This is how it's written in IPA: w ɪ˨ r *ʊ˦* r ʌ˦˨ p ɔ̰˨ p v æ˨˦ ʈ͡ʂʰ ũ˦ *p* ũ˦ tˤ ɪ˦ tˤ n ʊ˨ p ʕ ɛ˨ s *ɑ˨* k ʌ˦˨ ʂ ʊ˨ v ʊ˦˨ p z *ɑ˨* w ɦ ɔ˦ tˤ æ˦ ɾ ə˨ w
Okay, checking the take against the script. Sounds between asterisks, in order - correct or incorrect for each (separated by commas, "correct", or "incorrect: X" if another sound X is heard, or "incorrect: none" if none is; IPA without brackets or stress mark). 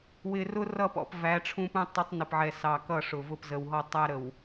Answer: correct, correct, correct, incorrect: ə˨